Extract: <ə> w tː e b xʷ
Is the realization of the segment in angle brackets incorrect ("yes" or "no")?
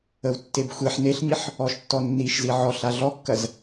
no